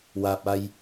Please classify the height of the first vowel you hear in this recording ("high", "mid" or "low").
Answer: low